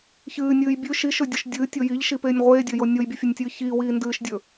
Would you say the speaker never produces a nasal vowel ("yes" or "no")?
yes